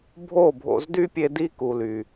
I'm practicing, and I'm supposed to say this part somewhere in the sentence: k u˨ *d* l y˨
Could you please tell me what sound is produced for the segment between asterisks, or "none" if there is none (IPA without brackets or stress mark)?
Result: none